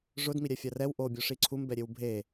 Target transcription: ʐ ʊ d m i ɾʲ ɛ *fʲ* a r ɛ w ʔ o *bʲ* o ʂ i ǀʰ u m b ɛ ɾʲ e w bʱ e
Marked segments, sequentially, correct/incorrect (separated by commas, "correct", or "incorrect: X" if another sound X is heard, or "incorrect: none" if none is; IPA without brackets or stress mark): correct, correct